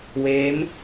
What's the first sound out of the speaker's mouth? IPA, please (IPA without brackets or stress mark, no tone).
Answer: w